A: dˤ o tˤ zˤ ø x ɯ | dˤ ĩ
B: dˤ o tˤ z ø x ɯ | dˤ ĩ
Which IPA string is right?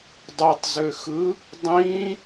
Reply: B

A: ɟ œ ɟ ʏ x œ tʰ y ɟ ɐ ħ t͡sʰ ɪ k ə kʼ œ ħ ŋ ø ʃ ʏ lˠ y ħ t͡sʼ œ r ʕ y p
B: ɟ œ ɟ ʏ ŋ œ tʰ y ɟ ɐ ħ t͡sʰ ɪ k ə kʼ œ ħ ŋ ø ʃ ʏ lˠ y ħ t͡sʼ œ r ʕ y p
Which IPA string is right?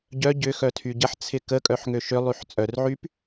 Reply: A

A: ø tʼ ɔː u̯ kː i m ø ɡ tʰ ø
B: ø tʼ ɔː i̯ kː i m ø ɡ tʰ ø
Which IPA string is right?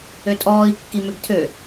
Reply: B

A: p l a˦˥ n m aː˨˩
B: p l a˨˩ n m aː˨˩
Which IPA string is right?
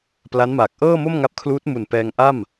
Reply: A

